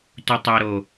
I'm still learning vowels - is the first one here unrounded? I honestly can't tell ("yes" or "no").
no